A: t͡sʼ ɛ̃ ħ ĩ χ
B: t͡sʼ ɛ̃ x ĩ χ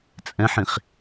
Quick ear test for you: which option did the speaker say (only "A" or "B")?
A